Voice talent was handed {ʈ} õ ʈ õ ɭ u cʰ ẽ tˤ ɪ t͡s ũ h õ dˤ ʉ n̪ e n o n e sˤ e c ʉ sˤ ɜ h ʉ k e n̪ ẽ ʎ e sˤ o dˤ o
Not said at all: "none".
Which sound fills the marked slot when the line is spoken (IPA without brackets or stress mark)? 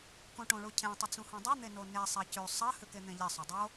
k